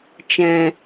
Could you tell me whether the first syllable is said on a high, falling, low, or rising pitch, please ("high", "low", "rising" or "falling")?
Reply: low